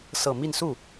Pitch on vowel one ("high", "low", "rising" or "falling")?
falling